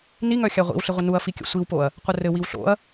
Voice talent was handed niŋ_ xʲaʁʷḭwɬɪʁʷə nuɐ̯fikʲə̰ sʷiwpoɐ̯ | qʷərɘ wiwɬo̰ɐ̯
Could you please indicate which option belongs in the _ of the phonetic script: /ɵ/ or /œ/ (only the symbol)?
œ